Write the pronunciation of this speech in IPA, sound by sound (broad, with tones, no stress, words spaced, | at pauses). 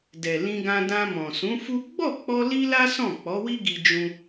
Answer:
dɛ˨lĩ˧ɡã˧dã˧ mɔ̃˨sũ˨˦fu˦ ɡ͡bɔ˦˨k͡pɔ˧ li˦la˦ sɔ̃˦˨ k͡pɔ˨˦wi˦ɡi˧ d͡ʒũ˦